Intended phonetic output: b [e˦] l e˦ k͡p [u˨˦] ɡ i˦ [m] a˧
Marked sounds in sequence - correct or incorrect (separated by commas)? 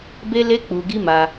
correct, incorrect, correct